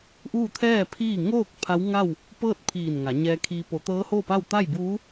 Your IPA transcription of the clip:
ʔ uː˥˨ t̪ʰ ɛː˥˨ pʰ iː˥˨ ŋ oː˥˨ k̚ pʰ a˧˥ w ŋ a˥˨ w | p ɤː˥˨ t̚ pʰ iː˧˩ n ŋ a˩˧ ɲ ɛː˧ kʰ iː˧ p o˩˧ t̪ ɤː˧˥ h oː˥˨ p a˥˨ w t̪ a˥˨ j b uː˧˥

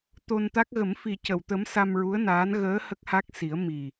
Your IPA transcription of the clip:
t̪ o˧ n t̪ a˦˥ k̚ ɣ ə˨˩˦ m f i˨˩ c ə˨˩˨ w t̪ ə˧˥ m s a˧ m ɹ u˧˥ ə̯ n aː˧˥ n ɣ əː˧˥ h ə˦˥ k̚ h a˦˥ k̚ s i˨˩˦ ə̯ m i˨˩

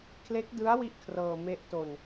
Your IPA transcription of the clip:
kʰ l e˦˥ k̚ d ɯ˦˥ a̯ w i˥˩ ʔ kʰ r ɤː˧ m e˦˥ ʔ t o˧ n

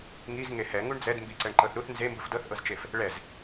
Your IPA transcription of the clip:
ŋ i z ŋ e h ɛ ŋ u ɳ d͡z ɛ d m b i ǀ ɛ ɳ ǃ ɤ θ ɾ u θ n z e m b ɯ f d ɤ θ ʔ ɤ z t͡ʃ e f | ɭ ɛ z

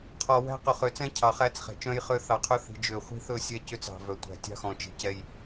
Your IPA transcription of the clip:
qʰ ɔ˨ w æ̤˦ q ɵ˨ χ ø˨ t͡s ɛ̃˦ cʰ ɑ˨ χ æ˦ t͡s χ ɛ̤˨ t͡ʃ œ̃˦ j χ ø˦ θ ɑ˨ qʰ ɵ˦ θ i̤˨ d͡ʒ ø˨ χʷ i̤˦ θ ɵ˦˨ sʲ ɛ˦ c ø˦ t͡s ɑ̤˨ v œ˨ tʷ æ̤˨ tʲ ɑ̤˦ x ɔ̃˨ t͡ʃ i̤˨ c ɛ˦ j

